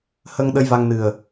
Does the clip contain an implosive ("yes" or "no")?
yes